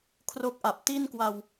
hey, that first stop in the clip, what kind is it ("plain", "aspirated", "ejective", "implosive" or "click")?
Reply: aspirated